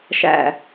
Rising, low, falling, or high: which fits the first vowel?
low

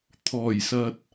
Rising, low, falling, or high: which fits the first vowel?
low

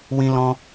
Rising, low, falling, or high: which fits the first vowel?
high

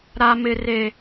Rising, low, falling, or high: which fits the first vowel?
high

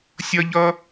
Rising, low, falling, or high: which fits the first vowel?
high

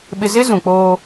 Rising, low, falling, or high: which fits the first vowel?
low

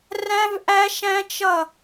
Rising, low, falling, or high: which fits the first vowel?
high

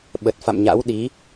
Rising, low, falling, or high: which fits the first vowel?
low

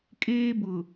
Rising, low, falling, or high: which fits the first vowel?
high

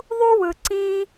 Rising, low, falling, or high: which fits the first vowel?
high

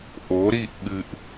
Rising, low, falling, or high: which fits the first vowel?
rising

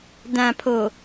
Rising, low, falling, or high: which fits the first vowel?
low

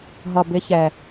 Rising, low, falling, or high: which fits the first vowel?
low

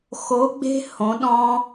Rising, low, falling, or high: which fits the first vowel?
rising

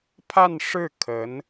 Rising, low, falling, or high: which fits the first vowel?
falling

